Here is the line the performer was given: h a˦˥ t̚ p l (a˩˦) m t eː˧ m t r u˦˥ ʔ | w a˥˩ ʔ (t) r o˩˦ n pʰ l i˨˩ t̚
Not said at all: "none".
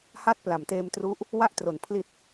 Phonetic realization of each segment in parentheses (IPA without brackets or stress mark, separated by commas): a˩˦, t